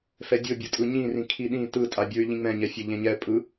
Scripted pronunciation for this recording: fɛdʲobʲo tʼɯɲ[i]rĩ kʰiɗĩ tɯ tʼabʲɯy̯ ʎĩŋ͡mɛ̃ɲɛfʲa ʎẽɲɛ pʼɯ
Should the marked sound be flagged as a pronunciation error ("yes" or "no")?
yes